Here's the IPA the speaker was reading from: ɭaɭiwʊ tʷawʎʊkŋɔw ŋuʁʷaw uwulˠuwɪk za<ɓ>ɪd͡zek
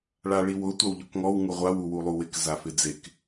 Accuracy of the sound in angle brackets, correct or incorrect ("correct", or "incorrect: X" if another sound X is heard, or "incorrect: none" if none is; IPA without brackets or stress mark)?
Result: incorrect: f